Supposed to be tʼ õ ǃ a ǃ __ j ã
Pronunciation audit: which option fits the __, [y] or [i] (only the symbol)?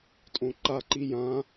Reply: i